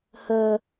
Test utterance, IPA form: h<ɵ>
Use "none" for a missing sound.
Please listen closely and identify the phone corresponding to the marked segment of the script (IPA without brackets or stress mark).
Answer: ə